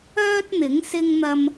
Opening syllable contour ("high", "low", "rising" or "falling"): high